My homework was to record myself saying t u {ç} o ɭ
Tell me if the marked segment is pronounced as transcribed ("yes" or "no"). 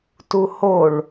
no